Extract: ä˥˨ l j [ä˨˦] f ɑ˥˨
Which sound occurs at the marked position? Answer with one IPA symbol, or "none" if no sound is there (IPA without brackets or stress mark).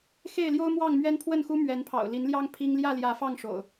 ä˨˦